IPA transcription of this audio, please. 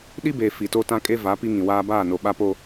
ɗi˦beː˨ fi˨to˦tã˦ kʼe˦va˨˦ pi˦ŋĩ˨waː˦ baː˦˨no˨ɓa˦po˦

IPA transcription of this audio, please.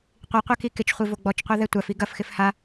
qʷiqʷɛki kɪt͡ʃχʷivo ɡ͡bɔt͡ʃqʷaðɛ tʷafi ɡɐfxɪf ha

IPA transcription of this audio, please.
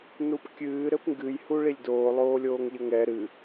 nupkʲɨː ɾɘpŋɡɨj huɭilʲdoː lˠoːlʲoːŋʎɘŋɛ ɾɨ

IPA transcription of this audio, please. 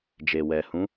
d͡ʒe˨ wɛ˨ hũ˨˦

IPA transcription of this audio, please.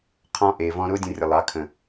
qʰɔ̃˧ʔeː˨vɔ̃˧ ɾʊː˦dʲə̃˧rʲə˨lˠɑ˨˦ kʰə̃˨

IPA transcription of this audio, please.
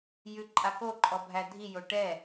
jʉǃʼako ǃʼɔbʱædʱi joʈɛ

